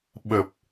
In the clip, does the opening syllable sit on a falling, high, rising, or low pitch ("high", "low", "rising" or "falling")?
low